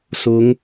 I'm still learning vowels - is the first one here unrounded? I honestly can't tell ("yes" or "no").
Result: no